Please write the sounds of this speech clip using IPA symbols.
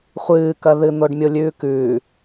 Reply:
χʷɨːkɐðɨn̪oɖ mʲolʲʉːkʉː

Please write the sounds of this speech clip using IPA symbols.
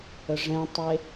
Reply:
əʐɛ̃tˤe

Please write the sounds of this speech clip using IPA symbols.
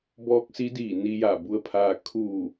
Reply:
bɔː˧˥k̚si˧˥diː˧˩ ni˧ja˧˩ bu˧ə̯pʰaː˧ kʰuː˧˩

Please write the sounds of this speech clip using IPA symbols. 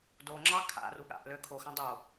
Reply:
do ŋ͡ǁɑkʰa̰ru ɠa̰ʔlø kʰoxã dˤo

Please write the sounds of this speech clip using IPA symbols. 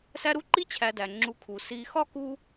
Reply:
sæ˦ɾu˥ ǃi˥t͡ɕʰæ˨dæ˩ ŋ͡ǁu˨kʰu˩ si˨xɒ˥ku˦

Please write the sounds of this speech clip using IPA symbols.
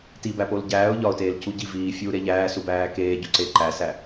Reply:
tibæpol ɟæːʊ̯ ʎɒʊ̯teːlcu ɟi viːfʲuːɾe ʎæːsubæː keːɟu ǀe ǃæsæ

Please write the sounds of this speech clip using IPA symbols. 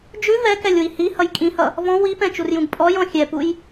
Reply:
d͡ʒʉ vɛkɛlʲwi hihʌj kʼĩhʌ | vɔ̃ wipɛ̃t͡ʃurjũɡ pʼɔjɔ̃ xʲɛpuj

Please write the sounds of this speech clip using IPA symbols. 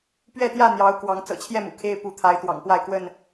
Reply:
pɥɛ˥˨t̪jä˥˨ n̪jɑ˨˦ʊ̯ kwɑ˨˦ŋ t͡sɤ̰˨˩t͡ɕʰjɛ˥˨mṵ˨˩ kʰe˦ɪ̯ pu˨˦t̪ʰa˨˦ɪ̯ t̪wɑ̰˨˩ŋpwa˥˨ɪ̯kwə˥˨n

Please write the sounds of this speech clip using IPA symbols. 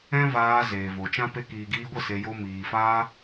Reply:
ɛ̃˦vaː˧ zeː˨vo˨t͡ʃã˦ pe˧kiː˨ɡiː˧ɡʷə˦˨ se˧jo˦ miː˨faː˦

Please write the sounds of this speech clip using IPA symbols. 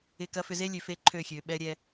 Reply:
ɪ˨ kɐ˨˦fʏ˨ze˦lʲø˨ fe˦ǃʰø˦˨xʲø˨ɓɛ˦ ɾʲɛ˦

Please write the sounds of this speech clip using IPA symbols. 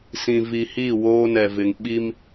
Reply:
sĩ˨vi˨hi˦˨ woː˦ nɛ˨vɪ˨ŋ ɓi˦m

